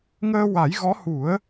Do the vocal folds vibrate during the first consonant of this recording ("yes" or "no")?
yes